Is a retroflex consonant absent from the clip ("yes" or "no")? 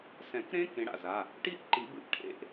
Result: no